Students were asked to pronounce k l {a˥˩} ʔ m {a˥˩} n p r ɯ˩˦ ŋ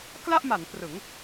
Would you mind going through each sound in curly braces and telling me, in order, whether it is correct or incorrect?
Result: correct, incorrect: a˩˦

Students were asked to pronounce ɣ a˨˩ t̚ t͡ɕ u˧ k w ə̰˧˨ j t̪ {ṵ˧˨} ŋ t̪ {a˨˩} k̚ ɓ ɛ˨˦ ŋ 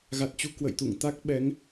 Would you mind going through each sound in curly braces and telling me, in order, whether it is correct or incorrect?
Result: correct, incorrect: a˦˥

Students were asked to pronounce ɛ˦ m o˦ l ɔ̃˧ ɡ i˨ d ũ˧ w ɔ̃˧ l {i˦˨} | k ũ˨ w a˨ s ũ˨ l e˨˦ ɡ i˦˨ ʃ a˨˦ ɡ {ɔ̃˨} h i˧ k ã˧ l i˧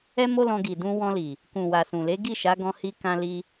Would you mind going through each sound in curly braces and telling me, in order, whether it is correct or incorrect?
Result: incorrect: i˨, incorrect: ɔ̃˧

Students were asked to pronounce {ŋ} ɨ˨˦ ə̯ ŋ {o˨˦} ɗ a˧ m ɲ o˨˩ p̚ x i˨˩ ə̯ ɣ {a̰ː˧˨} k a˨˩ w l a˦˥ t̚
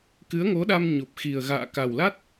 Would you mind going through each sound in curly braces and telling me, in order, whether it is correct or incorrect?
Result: incorrect: k, correct, correct

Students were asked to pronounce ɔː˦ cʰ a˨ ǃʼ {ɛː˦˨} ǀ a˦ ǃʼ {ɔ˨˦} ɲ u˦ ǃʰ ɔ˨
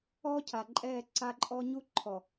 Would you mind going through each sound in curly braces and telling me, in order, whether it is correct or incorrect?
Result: correct, incorrect: ɔ˦

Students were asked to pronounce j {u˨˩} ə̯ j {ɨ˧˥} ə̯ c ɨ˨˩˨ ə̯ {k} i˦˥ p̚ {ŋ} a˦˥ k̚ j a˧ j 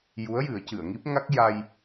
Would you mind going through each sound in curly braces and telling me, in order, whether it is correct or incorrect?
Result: incorrect: u˧˥, incorrect: ɨ˨˩˦, incorrect: ŋ, correct

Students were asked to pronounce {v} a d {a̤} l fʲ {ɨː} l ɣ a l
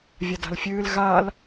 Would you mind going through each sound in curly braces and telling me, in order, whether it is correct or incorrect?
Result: incorrect: vʲ, correct, correct

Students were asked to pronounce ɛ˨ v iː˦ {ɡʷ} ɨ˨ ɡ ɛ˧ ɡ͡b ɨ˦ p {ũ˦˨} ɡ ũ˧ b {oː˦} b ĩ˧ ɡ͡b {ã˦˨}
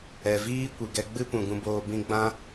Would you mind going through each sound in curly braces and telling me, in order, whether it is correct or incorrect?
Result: incorrect: kʷ, incorrect: ũ˨, incorrect: oː˧, incorrect: ã˦

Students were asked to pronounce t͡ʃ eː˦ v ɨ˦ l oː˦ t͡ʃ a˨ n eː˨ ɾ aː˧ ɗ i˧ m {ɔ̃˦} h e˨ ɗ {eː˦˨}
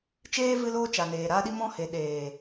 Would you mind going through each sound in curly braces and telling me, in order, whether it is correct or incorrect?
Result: incorrect: ɔ̃˧, incorrect: eː˨

